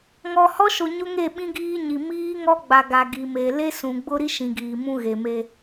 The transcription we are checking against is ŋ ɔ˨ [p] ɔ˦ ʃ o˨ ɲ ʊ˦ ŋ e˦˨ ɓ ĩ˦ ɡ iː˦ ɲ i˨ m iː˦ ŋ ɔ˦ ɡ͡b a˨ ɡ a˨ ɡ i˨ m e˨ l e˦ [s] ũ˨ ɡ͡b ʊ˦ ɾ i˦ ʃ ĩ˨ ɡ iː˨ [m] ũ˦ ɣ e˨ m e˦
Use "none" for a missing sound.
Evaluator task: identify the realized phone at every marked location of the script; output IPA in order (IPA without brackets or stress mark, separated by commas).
h, s, m